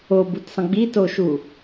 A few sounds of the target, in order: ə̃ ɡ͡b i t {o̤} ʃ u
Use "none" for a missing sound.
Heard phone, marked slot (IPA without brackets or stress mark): o